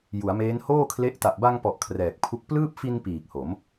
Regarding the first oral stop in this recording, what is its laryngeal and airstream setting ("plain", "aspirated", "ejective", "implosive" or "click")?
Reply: aspirated